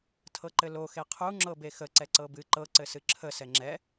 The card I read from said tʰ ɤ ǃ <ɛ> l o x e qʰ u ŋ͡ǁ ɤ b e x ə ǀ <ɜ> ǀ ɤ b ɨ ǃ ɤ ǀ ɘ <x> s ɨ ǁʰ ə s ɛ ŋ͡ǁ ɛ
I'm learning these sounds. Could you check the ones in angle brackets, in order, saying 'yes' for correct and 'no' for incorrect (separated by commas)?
no, no, no